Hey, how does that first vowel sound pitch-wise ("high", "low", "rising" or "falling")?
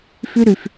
high